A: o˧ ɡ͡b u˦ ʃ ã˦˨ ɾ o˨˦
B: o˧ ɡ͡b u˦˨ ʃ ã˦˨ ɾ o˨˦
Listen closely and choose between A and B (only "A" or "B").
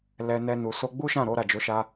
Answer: A